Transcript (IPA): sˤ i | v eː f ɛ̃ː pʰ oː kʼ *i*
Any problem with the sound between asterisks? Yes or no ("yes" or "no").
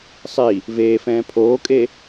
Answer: yes